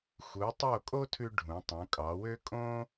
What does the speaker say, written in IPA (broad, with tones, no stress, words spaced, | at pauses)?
xu˩˧tˤo˧˩ kʼo˥tʰʉ˧ ɖʱũ˩˧tˤũ˩˧kʼɑ˩˧wø˥ kʼõ˥